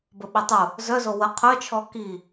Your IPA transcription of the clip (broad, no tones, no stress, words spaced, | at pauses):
bəɓitˤu | zœzo wə qʰœt͡ʃʰɔ ki